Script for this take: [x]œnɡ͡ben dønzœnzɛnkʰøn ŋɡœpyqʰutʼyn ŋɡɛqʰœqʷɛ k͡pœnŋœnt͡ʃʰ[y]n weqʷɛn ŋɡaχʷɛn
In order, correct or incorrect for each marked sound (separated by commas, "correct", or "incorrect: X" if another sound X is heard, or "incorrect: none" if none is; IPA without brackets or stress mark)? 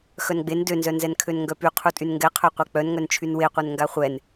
correct, correct